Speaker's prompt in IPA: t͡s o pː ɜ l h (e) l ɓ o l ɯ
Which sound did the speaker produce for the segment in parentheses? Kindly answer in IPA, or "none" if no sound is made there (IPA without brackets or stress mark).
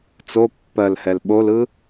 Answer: ɛ